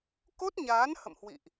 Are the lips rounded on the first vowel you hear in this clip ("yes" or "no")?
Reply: yes